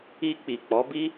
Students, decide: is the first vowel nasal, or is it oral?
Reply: oral